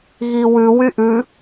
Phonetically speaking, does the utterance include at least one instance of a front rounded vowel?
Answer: yes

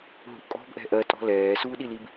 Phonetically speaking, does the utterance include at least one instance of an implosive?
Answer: yes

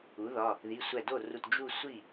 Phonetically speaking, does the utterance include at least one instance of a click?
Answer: no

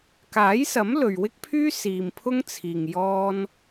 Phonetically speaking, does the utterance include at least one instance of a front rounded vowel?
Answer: yes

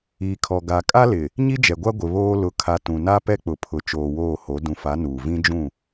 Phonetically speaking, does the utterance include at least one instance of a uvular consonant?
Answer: no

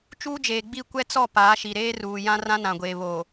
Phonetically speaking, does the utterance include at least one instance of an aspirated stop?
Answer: no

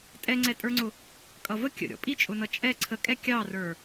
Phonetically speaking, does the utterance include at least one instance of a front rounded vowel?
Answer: no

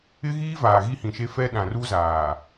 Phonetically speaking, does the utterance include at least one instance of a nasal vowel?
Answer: yes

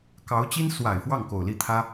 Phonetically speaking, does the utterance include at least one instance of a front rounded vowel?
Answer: no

